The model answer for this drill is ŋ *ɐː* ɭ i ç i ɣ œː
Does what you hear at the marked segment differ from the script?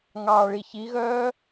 yes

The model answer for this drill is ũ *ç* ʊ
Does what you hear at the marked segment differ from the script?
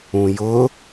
yes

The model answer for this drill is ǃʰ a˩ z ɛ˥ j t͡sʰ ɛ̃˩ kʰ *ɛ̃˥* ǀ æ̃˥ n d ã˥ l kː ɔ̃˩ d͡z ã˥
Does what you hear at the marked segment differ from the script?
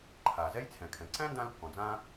yes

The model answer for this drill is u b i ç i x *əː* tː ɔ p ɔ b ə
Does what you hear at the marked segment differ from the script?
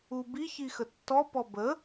yes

